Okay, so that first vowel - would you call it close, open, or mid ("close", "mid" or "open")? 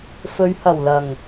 mid